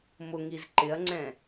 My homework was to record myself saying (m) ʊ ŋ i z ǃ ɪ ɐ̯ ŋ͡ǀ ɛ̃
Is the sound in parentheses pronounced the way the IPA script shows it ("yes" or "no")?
yes